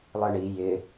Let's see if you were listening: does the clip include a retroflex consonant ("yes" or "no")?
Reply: yes